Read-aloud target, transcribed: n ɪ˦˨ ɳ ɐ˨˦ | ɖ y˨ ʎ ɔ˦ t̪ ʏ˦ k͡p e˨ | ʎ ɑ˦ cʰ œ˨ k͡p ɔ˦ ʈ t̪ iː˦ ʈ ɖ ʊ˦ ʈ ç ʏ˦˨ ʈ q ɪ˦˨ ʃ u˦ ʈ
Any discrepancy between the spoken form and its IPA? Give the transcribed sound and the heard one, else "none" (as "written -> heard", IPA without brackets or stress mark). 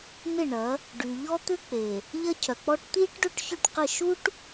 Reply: ɑ˦ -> ɐ˦